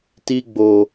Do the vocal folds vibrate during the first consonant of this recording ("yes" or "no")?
no